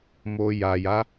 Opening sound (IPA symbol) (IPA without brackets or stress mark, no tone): m